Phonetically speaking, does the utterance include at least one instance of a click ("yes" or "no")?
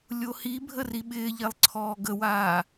yes